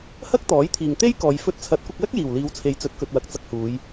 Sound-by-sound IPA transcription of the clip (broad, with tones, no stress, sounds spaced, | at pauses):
h ɐ˥ k̚ t̪ ɔː˨˥ j t̪ʰ iː˨ ŋ t̪ e˥ j k ɔː˨˧ j f ɵ˧ t̚ t͡sʰ ɐ˨˥ t̚ kʷ ɐ˧ k̚ l ɐ˥ k̚ j iː˨˩ w l iː˨˧ w t͡sʰ e˨ j t͡s ɵ˨˥ t̚ k ɵ˨ t̚ w ɐ˨ k̚ t͡s ɐ˧ k̚ h uː˨˧ j